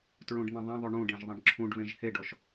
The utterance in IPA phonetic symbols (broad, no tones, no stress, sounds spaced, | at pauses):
t ɹ ũ ɖ n̪ ẽ ðˤ ẽ ðˤ y ɳ ũ ɖ ẽ ʒ ðˤ ẽ ɖ ǁʰ ũ ɖ β ẽ ʒ h e ɖ ɔ ʃ